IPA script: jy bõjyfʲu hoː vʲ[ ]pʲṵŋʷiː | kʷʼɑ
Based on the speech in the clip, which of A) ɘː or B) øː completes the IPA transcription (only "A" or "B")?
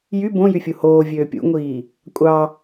B